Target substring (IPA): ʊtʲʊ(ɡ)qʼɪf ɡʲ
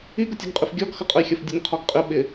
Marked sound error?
no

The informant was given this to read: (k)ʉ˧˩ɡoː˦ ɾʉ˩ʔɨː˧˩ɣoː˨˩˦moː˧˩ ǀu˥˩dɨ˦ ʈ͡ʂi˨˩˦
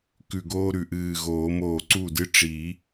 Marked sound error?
no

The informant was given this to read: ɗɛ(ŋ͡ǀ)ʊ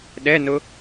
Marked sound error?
yes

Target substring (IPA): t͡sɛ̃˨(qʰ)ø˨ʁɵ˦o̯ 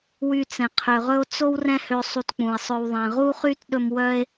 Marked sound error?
no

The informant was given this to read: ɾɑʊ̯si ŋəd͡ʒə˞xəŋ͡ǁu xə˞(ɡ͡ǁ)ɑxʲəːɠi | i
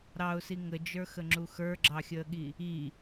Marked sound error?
no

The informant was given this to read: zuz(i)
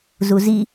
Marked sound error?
no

